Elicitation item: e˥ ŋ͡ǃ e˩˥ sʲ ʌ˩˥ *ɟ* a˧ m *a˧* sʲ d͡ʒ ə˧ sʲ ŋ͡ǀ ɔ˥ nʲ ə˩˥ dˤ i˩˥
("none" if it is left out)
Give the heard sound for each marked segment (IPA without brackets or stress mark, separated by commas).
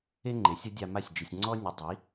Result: dʲ, a˥˩